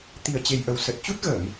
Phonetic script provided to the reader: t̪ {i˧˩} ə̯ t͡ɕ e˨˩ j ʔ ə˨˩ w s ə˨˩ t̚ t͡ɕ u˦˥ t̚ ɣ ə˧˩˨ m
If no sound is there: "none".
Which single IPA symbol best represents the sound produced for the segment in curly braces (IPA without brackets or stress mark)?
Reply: i˨˩